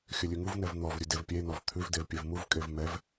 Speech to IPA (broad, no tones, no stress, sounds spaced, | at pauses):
xʲ ə lʲ ʉ ŋ u v n ɛ v n̪ ɔ v ɾʲ ʉ d e v pʲ e n ɔ v t̪ʰ ʉ v d e v pʲ e v m u v kʼ e v m ɛ v